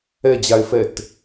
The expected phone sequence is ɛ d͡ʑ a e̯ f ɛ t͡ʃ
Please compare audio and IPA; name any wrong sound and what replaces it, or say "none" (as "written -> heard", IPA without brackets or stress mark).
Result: t͡ʃ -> t